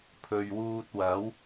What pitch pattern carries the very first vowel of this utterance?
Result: low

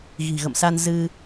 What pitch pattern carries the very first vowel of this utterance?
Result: low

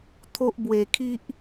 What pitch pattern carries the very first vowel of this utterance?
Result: high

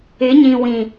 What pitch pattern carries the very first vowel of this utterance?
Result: rising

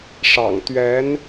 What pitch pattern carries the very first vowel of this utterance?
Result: low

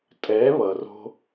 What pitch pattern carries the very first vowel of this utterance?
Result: rising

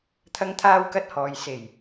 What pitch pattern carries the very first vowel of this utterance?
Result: high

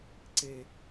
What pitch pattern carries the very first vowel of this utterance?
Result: high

